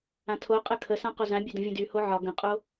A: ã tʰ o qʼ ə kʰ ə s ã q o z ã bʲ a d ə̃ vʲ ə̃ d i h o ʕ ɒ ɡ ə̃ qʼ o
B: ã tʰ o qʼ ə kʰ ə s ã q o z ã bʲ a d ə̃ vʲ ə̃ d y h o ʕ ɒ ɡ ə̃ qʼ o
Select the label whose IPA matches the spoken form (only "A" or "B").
B